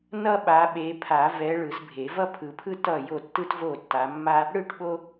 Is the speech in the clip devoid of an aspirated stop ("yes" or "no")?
no